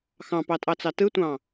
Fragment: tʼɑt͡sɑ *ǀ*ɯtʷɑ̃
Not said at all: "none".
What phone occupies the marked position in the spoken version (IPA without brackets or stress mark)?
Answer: t